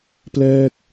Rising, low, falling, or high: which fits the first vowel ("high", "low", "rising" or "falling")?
falling